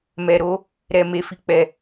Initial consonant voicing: voiced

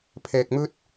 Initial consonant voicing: voiceless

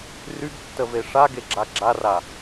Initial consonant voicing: voiced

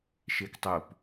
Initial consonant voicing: voiceless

